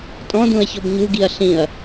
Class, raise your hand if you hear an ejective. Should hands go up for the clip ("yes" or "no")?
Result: yes